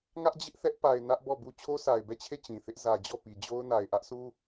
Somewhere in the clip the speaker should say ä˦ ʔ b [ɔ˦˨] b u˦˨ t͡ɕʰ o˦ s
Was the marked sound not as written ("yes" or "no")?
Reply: no